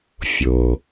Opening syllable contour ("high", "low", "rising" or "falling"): low